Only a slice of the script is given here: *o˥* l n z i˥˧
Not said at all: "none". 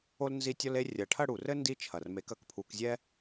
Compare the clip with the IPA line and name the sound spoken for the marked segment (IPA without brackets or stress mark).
o˥